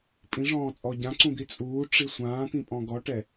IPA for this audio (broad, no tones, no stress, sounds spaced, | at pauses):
pʼ ĩ ʐ ɔ̃ː t͡sʼ ɔ ɟ ã ǀ ũ d̪ i t͡sʼ uː ʈ͡ʂ i sʷ ãː t̪ ĩ pʼ ɔ̃ ɡ ɔ ʈ ɛ